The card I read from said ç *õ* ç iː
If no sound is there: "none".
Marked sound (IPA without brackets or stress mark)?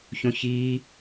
õ